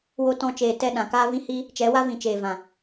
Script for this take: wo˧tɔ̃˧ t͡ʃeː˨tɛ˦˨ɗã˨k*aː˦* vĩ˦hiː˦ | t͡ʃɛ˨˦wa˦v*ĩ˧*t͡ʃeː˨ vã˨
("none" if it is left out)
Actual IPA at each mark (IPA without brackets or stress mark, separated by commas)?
aː˦, ĩ˨